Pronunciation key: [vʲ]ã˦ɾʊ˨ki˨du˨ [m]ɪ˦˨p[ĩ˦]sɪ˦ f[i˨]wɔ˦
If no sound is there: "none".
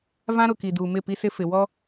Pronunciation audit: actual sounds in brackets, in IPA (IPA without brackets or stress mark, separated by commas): v, m, i˦, ɪ˨